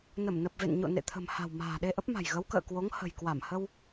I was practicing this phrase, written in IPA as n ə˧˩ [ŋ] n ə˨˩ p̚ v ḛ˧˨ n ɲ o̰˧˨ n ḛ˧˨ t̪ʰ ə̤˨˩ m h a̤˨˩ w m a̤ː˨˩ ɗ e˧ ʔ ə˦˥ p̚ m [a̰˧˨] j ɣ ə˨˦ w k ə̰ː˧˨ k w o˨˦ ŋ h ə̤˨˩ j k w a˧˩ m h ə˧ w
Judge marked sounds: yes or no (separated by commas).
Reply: no, no